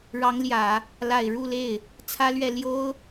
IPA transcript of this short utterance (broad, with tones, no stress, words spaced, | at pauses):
ɻɑ˧˥ŋljä˨˩˦ | la˨˩ɪ̯ɻu˥˧le˥˩ɪ̯ | t͡sʰä˥lɥɛ˥˩ ljo˥ʊ̯